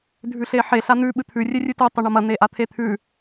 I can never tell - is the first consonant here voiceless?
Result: no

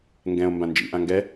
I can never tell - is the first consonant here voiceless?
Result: no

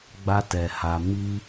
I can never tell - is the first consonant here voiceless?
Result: no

